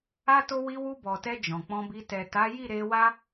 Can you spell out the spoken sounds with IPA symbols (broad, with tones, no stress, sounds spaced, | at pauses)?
a˦ t o˦ w i˧ w u˧ b ɔ˨ t ɛ˧ d͡ʒ ɔ̃˨ k͡p ɔ̃˧ b i˧ t ɛ˨ t a˨˦ j i˦˨ ɾ e˧ w a˦